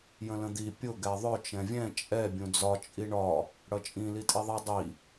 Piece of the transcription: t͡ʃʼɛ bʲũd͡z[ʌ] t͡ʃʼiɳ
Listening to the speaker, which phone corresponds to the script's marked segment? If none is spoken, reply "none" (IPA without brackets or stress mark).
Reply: ɒ